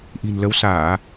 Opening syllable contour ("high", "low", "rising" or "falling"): low